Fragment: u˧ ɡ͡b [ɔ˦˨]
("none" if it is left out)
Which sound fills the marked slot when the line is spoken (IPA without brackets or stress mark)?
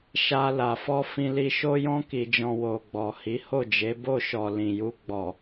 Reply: ɔ˨